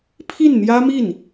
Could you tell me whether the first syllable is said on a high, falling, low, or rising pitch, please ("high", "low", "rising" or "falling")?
falling